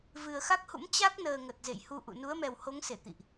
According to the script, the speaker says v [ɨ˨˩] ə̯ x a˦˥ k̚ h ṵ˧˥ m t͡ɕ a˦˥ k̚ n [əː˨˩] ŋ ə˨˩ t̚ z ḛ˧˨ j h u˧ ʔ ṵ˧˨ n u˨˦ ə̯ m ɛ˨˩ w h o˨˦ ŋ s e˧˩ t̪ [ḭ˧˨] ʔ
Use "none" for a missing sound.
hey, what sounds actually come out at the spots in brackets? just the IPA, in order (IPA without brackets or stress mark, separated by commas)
ɨ˨˩, əː˨˩, ḭ˧˨